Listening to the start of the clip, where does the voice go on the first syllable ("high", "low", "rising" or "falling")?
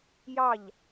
falling